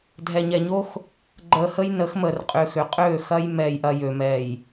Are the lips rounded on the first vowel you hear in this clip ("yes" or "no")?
no